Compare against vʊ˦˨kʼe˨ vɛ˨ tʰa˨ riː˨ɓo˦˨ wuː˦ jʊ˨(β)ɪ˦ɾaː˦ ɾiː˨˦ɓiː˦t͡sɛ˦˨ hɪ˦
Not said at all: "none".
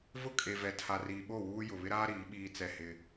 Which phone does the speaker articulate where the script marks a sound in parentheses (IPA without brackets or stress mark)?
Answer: β